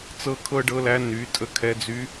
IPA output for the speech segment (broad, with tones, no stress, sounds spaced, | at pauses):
t͡s ɤ˧ kʰ ɤ˥ ɖ ɤ˧˥ l æ˧˥ n y˩˧ tʼ ə˧˥ kʰ ɛ˧˥ d͡z y˧˥